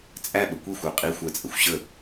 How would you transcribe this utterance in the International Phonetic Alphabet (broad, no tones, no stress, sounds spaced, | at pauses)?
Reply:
t͡sʼ æ ɓ ə kʷ i xʷ ə˞ qʼ i xʷ æ t͡sʼ ə xʷ ɕ ə